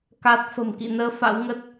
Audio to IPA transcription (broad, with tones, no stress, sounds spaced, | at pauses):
k a˦˥ t̚ f ə̤˨˩ m k ḭ˧˨ n əː˨˦ f a̰˧˥ w ŋ ə˦˥ t̚